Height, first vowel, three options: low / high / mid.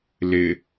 high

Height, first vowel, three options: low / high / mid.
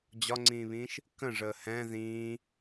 low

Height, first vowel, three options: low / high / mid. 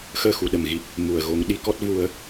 mid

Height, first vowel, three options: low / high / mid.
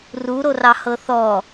high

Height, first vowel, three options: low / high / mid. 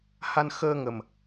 low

